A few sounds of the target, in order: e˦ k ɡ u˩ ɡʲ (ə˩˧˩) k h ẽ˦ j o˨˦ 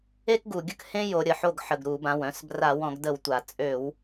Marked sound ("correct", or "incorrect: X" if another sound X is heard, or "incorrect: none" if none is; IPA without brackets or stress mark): incorrect: ə˥˩